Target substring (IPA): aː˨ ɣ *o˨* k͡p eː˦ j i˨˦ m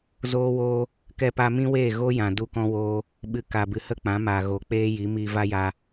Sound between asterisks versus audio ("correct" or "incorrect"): correct